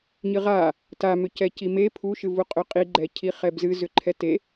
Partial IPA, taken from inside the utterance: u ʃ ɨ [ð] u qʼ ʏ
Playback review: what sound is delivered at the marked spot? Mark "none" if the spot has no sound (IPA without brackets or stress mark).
v